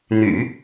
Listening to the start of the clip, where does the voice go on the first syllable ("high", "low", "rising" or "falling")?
low